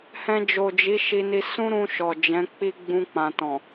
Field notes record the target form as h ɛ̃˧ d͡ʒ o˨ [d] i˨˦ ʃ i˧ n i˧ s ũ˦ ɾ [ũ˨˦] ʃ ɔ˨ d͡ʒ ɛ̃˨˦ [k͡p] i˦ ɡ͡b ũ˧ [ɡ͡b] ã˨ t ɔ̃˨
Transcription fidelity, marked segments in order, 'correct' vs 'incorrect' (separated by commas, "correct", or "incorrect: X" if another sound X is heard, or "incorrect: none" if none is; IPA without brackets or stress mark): incorrect: d͡ʒ, incorrect: ũ˧, correct, incorrect: k͡p